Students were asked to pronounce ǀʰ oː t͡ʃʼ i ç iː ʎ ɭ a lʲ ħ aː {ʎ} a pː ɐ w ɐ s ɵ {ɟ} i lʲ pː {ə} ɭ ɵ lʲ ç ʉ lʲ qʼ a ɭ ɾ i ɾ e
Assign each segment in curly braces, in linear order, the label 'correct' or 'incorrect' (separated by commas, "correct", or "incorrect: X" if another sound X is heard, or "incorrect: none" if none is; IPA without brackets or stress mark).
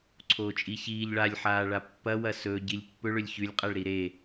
incorrect: ɭ, correct, incorrect: ɵ